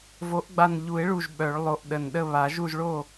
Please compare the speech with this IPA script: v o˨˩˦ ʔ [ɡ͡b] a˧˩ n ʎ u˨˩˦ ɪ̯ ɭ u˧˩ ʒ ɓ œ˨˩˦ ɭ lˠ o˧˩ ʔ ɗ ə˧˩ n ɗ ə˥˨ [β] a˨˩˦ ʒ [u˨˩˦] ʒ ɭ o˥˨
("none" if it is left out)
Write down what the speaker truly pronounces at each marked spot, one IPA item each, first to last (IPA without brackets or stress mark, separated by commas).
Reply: ɡ͡b, β, u˥˨